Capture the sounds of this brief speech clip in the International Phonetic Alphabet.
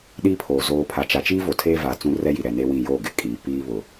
ɗi˦pʰoː˨ zoː˨pʰa˨t͡ʃa˨ t͡ʃi˦vo˨tʰeː˦ va˨t͡sũ˦ rɛ˦ji˨ ɾɛ˨ne˦wĩ˦˨ jo˦˨ ɡɪ˨ kʼiː˨ piː˦βʊ˨

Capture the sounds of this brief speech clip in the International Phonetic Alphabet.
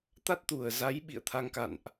t̪a˦˥t̚t̪u˨˩ə̯za˨˦j ɓḭ˧˨ə̯t̪ʰa˧ŋka̰˧˨nʔ

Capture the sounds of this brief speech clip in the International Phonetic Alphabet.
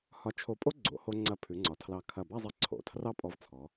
hɒ˧ t͡ʃʰo˧˩pʼo˥ ɡ͡ǀo̰˩˧ho˧ ŋ͡ǀɐ˧˩ pʰʉ˩˧ŋ͡ǀɒ˩˧tʰlɑ˧˩ kʰɐ˧˩ba˥˧zˤɛ˧ ǀʰo̰˩˧ tʰrɑ˥pʼɔ˧vt͡sʰɔ˩˧

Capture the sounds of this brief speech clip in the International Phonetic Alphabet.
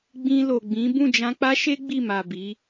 ɡ͡bĩ˧lo˨ɡ͡bĩ˨˦ bũ˦˨d͡ʒã˧k͡pa˦ʃe˦ ɡ͡bi˦˨ma˨bi˨˦

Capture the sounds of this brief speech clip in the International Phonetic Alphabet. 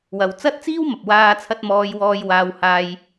wɐ˧w t͡sɐ˥t̚t͡siː˥wmɐ˨p̚ waː˧t͡sʰɐ˧t̚ mɔː˥jwɔː˥j waː˥whaː˥j

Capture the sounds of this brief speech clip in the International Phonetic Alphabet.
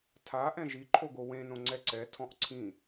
tʰa ʔɛ̃ʒiǃʰoɡo wẽnõ ŋ͡ǀɛǀɛ tʰɔ̃ʔǀʰĩ

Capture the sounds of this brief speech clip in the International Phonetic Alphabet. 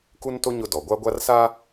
ku˦nto˦ ɲʊ˦dɔ˨ ɡʷa˦ɡʷa˦rsa˦

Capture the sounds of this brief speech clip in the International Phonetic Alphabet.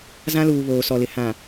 zã˦luː˨ βoː˨sɔ˨lɪ˨ hã˨

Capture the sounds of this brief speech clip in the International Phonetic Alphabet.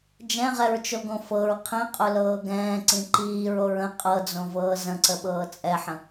d͡ʒɛ̃ʁɛɹt͡ʃoɡõ fɤɹ qʰĩqʼʊlɤː ɡɛ̃ːǀĩ ǃiːɹoɹ ə̃ qʼɤd͡zõvɤː zə̃ǀəɓɤː t͡sʼɛħə̃

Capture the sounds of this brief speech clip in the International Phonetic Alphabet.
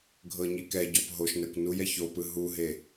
ɡʱɤɲikɛɟɔp ɦoʃnɛkʷ nujɛ çopɯ ɦuɦe

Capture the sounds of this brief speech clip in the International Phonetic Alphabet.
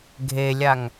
ɡʱelʲaŋ

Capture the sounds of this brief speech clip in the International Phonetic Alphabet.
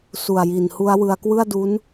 su˨˩a̯ji˨˩nhu˦˥a̯ wɯ˧a̯kwɯ˥˩a̯ du˦˥n

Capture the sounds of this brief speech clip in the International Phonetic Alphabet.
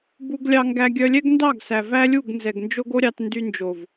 bu˧ɡlʲɑ˧ŋɡæ˧ ɡʲœ˧lʲɛ˦ɡndɑ˦˨ɡ sæ˨væ˦lʲu˦˨ɡ nzɛ˨ɡnd͡ʒo˦ɡo˦ɾʲɑ˧t ndy˧nd͡ʒo˨v

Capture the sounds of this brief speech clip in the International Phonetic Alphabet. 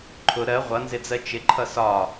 ǃʰʊ ɾɜ ʁʷʌnzɪd͡zɜ t͡ʃɪǃʰʌ sɒ

